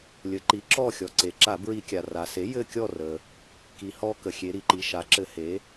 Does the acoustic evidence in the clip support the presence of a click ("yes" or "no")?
yes